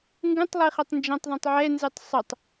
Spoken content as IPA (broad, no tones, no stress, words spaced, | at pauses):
ŋɡũtˤlˠiχetˤ nd͡ʒɛ̃tˤðˤɛ̃tˤ ʕɛnzɯtˤ sˤɯtˤ